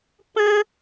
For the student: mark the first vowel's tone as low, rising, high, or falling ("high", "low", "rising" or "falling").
high